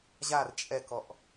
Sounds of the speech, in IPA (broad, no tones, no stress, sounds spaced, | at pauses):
ʑ a r t͡ʃʼ ɛ k ɔ ʔ